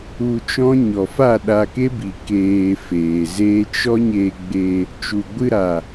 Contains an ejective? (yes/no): no